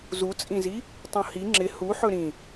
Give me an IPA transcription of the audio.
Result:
zut͡sʼĩzi | tˤũhi ŋ͡ǁɪ huħɵ ɾĩ

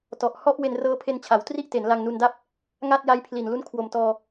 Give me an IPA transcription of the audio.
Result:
tɔ˨˩ʔhɔ˥˩ʔ we˧nrɤː˦˥pʰe˧nt͡ɕʰa˩˦w tri˥˩ʔte˩˦n la˧ŋnu˧nda˥˩p̚ | ŋa˥˩t̚ja˦˥jpʰli˨˩n lu˥˩nkʰwo˨˩mtɔː˧

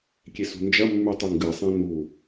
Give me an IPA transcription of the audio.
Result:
kʲesṳnd͡ʒɐmːʉ tˤiŋɡɨsˤĩ nu

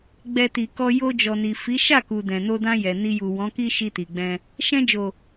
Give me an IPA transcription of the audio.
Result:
ɡ͡bɛ˧ti˨kɔ˧ jo˧d͡ʒɔ˨ni˨fi˨˦ ʃa˦˨ku˨ dɛ̃˨no˧dã˧jɛ˨ ni˧ju˨wɔ̃˨˦ki˦ ʃi˧ti˨ɡ͡bɛ̃˧ | ʃɛ̃˧d͡ʒo˨

